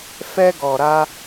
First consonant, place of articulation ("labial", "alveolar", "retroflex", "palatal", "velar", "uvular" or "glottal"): labial